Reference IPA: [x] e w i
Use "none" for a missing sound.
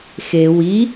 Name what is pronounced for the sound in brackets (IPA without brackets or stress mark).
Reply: x